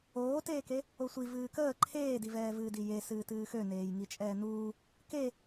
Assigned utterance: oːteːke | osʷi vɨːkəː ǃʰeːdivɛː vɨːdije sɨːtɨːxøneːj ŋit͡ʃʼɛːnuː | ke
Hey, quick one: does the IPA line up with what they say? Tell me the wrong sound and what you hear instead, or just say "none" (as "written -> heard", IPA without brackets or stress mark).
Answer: none